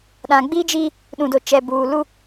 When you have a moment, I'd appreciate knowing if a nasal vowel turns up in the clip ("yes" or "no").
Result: yes